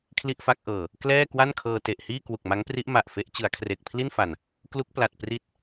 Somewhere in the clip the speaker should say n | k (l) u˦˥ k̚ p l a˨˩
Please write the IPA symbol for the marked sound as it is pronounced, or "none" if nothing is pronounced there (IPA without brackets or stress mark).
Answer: l